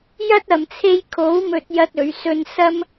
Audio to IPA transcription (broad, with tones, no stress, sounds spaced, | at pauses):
j ɐ˥ t̚ ɐ˨ m t͡sʰ e˥ j kʰ o˨˥ w m ɵ˥ t̚ j ɐ˥ t̚ ɵ˨˧ ɥ s ɵ˧ n s ɐ˥ m